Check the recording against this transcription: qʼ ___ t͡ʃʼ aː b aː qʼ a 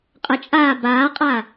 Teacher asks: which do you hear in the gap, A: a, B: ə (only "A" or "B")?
B